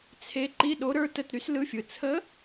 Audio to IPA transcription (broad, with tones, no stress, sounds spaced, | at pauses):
t͡sʰ e˧˥ ǃ i˧˥˧ ɗ o˧˥ ɾ ə˞˧˥ t ə˧˥˧ t ɾ y˧˥ s l ɯ˧˥˧ fʲ ɯ˨ t͡sʰ ə˧˥